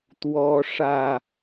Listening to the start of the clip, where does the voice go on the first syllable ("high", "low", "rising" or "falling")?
high